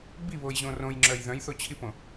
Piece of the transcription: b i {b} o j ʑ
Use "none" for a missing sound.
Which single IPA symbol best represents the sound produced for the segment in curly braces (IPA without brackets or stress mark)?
β